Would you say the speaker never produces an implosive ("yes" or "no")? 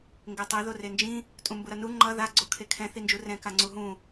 yes